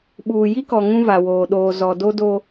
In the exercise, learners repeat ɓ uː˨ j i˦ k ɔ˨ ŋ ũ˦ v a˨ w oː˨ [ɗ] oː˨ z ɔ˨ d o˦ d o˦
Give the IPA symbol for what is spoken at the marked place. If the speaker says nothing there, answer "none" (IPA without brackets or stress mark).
ɗ